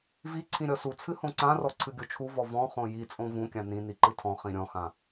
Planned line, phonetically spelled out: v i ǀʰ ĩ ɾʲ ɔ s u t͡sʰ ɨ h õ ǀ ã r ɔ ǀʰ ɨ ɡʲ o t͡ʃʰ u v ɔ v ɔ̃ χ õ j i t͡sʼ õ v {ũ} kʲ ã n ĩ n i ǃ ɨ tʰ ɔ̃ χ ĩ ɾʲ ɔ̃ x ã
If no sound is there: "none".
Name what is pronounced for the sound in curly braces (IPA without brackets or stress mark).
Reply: ũ